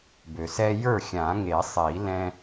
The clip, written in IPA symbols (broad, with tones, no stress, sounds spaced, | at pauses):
b ø˩ s ɛ˧ j ə˞˥˩ xʲ ã˨˩˦ ŋ e˨˩˦ sˤ i˨˩˦ l ɛ̃˧